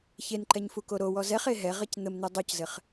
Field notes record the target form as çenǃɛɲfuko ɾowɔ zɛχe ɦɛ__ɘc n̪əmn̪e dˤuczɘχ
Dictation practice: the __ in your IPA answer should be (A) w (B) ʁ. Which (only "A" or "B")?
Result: B